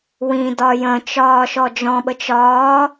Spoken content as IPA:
wĩdɒ jə̃t͡ʃɒː ʃɔd͡ʒɔ̃ɓət͡ʃ ɒː

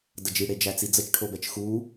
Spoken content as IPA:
dəd͡ʒiɽe d͡ʒæt͡sid͡zət͡ʃ ʈʰobɛt͡ʃxu

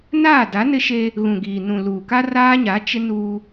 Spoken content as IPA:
naː˦˨da˨˦nɪ˦ʃe˦ | ɣũ˨ɡiː˨ nũ˨ luː˨ka˦raː˦ɲa˨˦ t͡ʃɪ˦ nuː˦

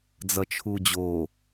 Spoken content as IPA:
d͡zʌt͡ʃʰud͡ʑo

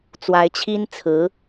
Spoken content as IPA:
t͡swa˧˥ɪ̯t͡ɕʰi˥nt͡sʰɹ̩˧˥

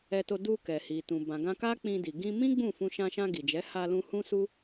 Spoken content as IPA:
ɛ˧to˧ du˧ kɛ˨hi˨ tũ˨bã˨ɡã˧ka˦ k͡pĩ˧di˨ ɡĩ˧mĩ˦ ɡ͡bũ˦˨fũ˧ ʃã˧ʃã˧ ɡi˨d͡ʒɛ˨˦ ha˧lũ˧ hũ˦su˦

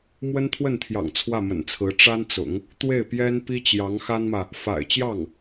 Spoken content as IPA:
mwə˥nt̪ʰwə˥˩nt̪ʰjɑ̰˨˩ŋ t͡sʰwä˥˩mə̰˨˩nt͡sʰɹ̩˧˥ ʈ͡ʂa˥nt͡sʊ̰˨˩˦ŋ | t̪we˥˩ɪ̯pjɛ˥n pi˥t͡ɕjɑ˧˥ŋxa˥nmä˨ | fa̰˨˩ɪ̯t͡ɕjɑ˥˩ŋ

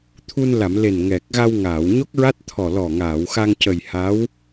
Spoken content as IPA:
t̪ʰu˧nla˨˩˨mle˨˩n ŋɛ˨˩k̚ɣa˧w ŋaː˨˩˨wɲo˦˥k̚ɹa˦˥t̚t̪ʰɔ˨˩ lɔ˨˩ŋaː˨˩˨w xa˧ŋ cə˨˩j ha˧˥w

